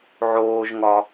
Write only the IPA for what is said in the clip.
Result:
ʕ oː ʒ ŋ ɒ

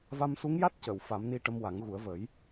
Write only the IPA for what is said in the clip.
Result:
v a˧ m s u˧˥ ŋ j a˦˥ t̚ c ə˨˩˨ w f a˨˩˦ m n i˧ ʈ ə˧ m w a˨˩˦ ŋ ɣ u˨˩˦ ə̯ v ə˨˩˦ j

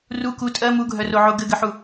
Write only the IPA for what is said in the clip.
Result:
r u k u tʼ ɜ m u ɡʱ œ r o ʕ o ɡ ɘ ɡ ɘ ħ u

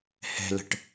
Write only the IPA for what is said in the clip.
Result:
h ɛ̤ l ə̤ ʈ

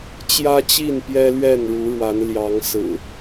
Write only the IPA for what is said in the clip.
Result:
t͡ɕ j ä˦ t͡ɕ i˥˨ n p j ɛ˦ l ɥ ɛ˥˨ n ɻ u˨˦ ɻ w a˨˦ n l j ɑ˨˦ ŋ s ɹ̩˨˩

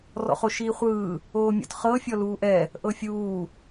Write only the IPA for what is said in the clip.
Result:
r ɔ̰ χ o ʃ iː χʷ ɯː | oː mʲ ɔ̰ t χ ɤ fʲ ɔ l uː ʔ ɛ | ʔ ɤ fʲ uː

